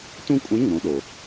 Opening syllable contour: high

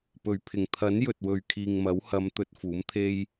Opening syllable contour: low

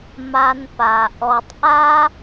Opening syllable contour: low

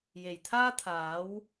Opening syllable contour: low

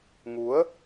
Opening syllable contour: rising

